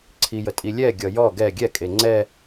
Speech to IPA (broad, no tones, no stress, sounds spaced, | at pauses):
ǀʰ i j ə tʼ i lʲ ɛ ɡʲ ʌ j ɔ ɡ ɛ ɡʲ ɛ kʼ e ŋ͡ǀ ɛ